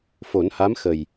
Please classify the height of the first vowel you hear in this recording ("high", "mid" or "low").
mid